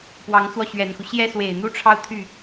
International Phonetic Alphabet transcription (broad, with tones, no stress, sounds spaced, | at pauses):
p w ɑ˧˥ ŋ t͡s w ɔ˧ ɕ ɥ ɛ˨˩ n x u˦ ɕ j ɛ˥ s w e˨˩ ɪ̯ n̪ u˥ ʈ͡ʂʰ ɑ˥˧ ʊ̯ t̪ʰ y˥˩